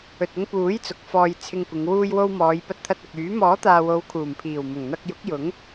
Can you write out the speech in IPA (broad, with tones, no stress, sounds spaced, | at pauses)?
ɵ˨ t̚ ʊ˧ ŋ p uː˨˥ j t͡s ʊ˨˥ k̚ f ɔː˧ j t͡sʰ ɪ˧ ŋ kʷ ɪ˨˧ ŋ w uː˧ j w o˧ w m ɔː˨˧ j p ɐ˧ t̚ t̪ʰ ɐ˧ t̚ ɐ˨ k̚ yː˨˥ m ɔː˨˥ t̪ aː˨ w o˨˧ w kʰ uː˨˩ m pʰ iː˨˩ w m ʊ˨˩ ŋ n̪ ɐ˧ k̚ j ʊ˨˥ k̚ j ʊ˨˥ ŋ